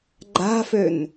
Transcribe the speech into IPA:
ɡ͡ǃ a̤ f ø n

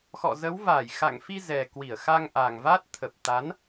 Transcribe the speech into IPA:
x ɔ̰˧˨ z ə˨˦ w v aː˧˩ j x a̰˧˨ ŋ f i˧ z ɛ˨˩ k w i˧˩ ə̯ x a˧ ŋ ʔ a˨˩ ŋ v a˦˥ t̚ t̪ʰ ə˨˩ p̚ t̪ a˨˦ n

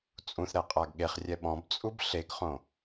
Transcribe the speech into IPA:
t͡sʼ ũ θ ɾ ɛ qʼ a ɡ ɠ e χ rʲ ɛ ɓ ɔ̃ b t͡sʼ u b ɬ e ɡ χ õ

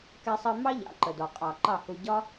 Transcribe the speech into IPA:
k ɛ˧ sˤ ɜ˧ m ɑ˦ ʎ ɑ̰˧ ǃ ə˨ d ɔ˨ qʼ ɑ˨ ǃ ɑ˦˨ h u˧ ɟ ɒ˦

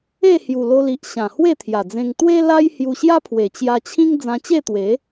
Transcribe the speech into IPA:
e˥˧ h j u˨˩ l o˧ l i˨ ʔ ɕ ã˨˩ h w e˥˧ t̪ʰ j a˨˩ d͡z ẽ˧ ŋ t̪ w e˦ l a˦ j h j u˧ ɕ j a˦ pʰ w e˨˩ t͡ɕ j a˧ t͡ɕʰ ĩ˦ ŋ d͡z ã˧ t͡ɕ e˥˧ t̪ w e˨˦

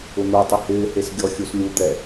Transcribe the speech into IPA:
ʊ n̪ o tˤ ɪ h ɪː h e s ɡʲ ɔ xʲ u s lʲ u d̪ ɛ

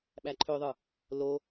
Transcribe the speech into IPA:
ɓ æ ǃʰ ø ðˤ ɯ | l o

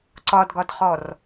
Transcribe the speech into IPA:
ǀ ɒ d ɡ ɒ d χ ɔ r

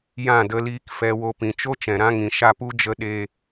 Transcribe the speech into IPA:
j ã˦˨ d ə˧ l iː˧ k f ɛ˧ w o˧ p ĩ˨ t͡ʃ o˦ t͡ʃ ɛ̃˨ ɾ ã˦ ŋ ĩ˨ ʃ a˧ p u˦ d͡ʒ ə˦ ɗ e˧

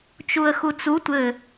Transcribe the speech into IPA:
t͡ʃ u ə̯ x u t͡s u tʷ ɘ

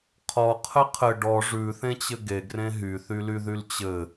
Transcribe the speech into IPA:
qʰ ɔ qʰ ɘ qʰ ɘ ɖ ɔ ʐ ʉ θ ẽ t͡ɕ ɘ ɡ e ɡ r ẽ ɦ y θ y l y ð y l t͡ɕ ɘ

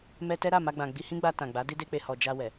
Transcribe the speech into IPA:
m ɛ˧ t ɛ˦ ɾ a˦˨ m a˧ ɡ͡b ã˨ ɡ͡b i˧ h ĩ˦ ɡ͡b a˧ t ã˨ ɡ͡b a˨˦ d i˦ d e˦ k͡p e˧ h ɔ˨ d͡ʒ a˧ w ɛ˨

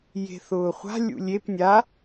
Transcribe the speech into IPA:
j e̤ θ ʊː χʷ a̤ lʲ ṵ lʲ e p nʲ a

